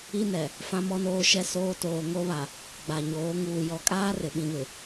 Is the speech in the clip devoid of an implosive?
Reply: no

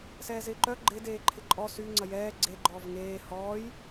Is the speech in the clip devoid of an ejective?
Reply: no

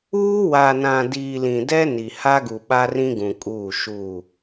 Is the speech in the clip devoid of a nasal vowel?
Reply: no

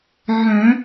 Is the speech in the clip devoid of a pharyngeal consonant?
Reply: no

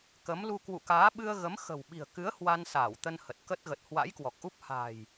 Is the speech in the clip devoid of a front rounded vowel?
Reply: yes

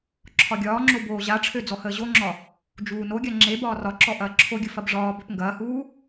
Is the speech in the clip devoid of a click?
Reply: no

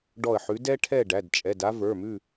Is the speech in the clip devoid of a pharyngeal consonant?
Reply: no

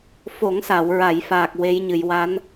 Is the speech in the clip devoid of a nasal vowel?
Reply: yes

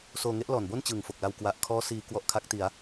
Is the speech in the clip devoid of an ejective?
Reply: yes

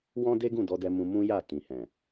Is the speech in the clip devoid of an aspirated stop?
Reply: yes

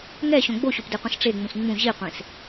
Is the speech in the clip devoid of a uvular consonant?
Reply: no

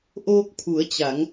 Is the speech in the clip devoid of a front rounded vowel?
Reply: yes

